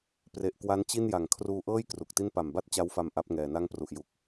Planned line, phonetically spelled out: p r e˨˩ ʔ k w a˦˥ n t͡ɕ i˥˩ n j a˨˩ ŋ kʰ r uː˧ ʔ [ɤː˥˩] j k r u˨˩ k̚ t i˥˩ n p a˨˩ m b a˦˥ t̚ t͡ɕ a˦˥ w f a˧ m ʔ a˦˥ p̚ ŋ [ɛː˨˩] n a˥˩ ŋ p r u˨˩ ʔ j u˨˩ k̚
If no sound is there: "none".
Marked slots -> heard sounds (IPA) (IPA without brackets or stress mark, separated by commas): ɤː˥˩, ɛː˨˩